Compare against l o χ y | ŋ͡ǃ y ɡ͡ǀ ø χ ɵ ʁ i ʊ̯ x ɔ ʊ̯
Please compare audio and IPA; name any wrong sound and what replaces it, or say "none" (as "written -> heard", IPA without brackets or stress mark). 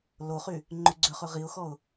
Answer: none